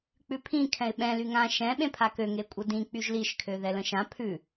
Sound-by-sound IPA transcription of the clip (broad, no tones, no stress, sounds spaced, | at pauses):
k͡p ʉ pʰ ĩ kʰ ɛ̃ ɪ̯ ɓ ɛ̃ l y ŋ ã ʃ ɛ̃ ɓ ẽ pʰ a k ø ŋ e kʷʼ ə d ĩ k͡p y ʒ l i ʃ kʰ ø ð ɛ l ə̃ ʃ ã pʰ ʉ